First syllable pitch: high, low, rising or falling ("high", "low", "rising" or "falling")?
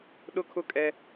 high